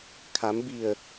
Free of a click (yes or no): yes